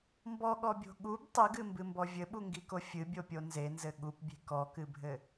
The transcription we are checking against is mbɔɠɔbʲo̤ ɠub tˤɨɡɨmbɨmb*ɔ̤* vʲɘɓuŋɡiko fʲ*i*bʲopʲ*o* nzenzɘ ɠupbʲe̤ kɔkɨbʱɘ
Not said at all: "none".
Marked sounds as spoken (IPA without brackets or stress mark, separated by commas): ɔ, ɨ, o